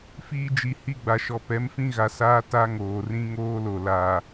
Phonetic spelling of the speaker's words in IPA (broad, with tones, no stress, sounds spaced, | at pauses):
f iː˦ d͡ʒ i˨ h i˦˨ ɡ͡b a˨ ʃ ɔ˨ p ɛ˨˦ m f ĩ˦ ɣ a˨ s aː˦ t a˦ ŋ oː˨ r ĩ˦ ŋ oː˦ l o˨ l a˨